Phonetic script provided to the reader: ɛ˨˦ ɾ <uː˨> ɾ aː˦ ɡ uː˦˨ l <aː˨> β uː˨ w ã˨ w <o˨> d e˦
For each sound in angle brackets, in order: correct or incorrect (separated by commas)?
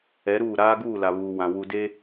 incorrect, incorrect, incorrect